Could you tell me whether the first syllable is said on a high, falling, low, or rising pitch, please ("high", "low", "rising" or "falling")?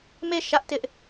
falling